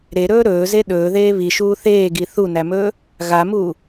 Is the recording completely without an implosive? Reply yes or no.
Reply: no